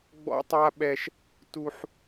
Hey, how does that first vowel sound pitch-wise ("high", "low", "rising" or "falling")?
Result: high